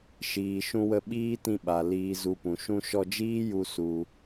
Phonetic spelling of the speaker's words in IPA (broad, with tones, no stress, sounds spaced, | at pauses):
ʃ iː˨ ʃ ũ˧ w ə˧ ɓ iː˦ t ĩ˧ ɓ a˨ l iː˧ z u˧ p ũ˨ ʃ ũ˧ ʃ ɔ˧ d͡ʒ iː˦ j u˧ s u˧